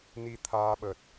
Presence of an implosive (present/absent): present